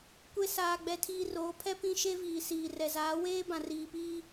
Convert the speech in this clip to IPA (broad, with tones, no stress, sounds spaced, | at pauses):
kʷ e˦ s aː˦ ɡ͡b ɛ˦ tʰ iː˦ r oː˨˦ pʰ ɛ˦ p ĩ˦ ʃ e˦ v iː˨ s iː˨ r ɛ˨ z aː˨˦ w eː˦ b ã˨ r iː˨ p iː˦